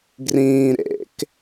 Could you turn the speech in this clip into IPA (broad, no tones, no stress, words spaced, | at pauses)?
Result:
ɡrĩː ɾḛk